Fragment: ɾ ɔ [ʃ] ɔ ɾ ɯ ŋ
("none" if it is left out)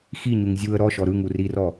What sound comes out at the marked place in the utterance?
ʃ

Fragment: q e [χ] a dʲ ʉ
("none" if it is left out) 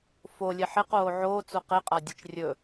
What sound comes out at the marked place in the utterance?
qʼ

